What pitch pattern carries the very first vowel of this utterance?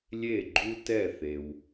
falling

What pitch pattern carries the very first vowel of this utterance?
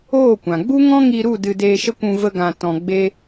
falling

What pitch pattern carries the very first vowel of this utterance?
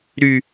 high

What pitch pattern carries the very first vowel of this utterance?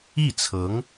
falling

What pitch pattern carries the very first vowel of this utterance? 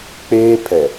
high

